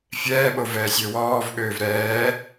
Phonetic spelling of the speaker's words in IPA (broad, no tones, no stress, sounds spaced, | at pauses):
fʲ ɛː ɓ o v ɛː sʲ ø w ɔː v ɠ øː v ɾ ɛː